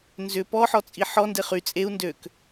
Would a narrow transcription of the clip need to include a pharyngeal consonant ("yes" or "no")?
yes